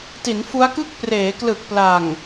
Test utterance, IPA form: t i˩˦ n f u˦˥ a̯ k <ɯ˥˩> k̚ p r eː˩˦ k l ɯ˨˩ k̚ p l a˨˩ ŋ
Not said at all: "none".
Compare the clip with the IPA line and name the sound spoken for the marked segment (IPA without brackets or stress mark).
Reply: ɯ˥˩